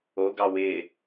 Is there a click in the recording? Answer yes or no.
no